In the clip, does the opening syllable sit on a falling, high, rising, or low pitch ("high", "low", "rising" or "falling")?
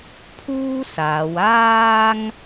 high